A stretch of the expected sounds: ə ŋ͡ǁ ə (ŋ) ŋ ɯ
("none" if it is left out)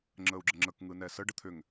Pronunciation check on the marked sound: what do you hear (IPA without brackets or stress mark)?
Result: k